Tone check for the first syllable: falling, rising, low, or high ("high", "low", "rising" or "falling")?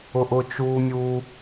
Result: low